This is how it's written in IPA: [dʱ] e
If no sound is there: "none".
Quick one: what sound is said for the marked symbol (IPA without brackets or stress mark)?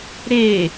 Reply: ɾ